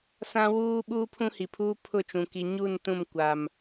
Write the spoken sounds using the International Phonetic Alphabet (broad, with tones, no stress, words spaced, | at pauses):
sã˦ wuː˦ ɓuː˦pʰũ˦hi˨pʰuː˦ pʰʊ˦˨t͡ʃũ˨ ki˨ɲu˦˨n tũ˦˨mkʷa˨m